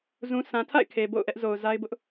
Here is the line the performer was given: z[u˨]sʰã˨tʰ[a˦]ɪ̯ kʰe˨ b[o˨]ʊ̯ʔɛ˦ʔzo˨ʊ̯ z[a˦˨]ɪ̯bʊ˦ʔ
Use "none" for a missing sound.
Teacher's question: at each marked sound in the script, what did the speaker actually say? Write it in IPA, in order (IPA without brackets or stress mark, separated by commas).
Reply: ũ˨, a̰˦˨, o̰˦˨, a˦